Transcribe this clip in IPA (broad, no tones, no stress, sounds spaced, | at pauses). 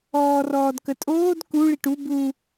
ɔː r ɔː d k ə tʼ oː d k u ɭ i ʈ u b u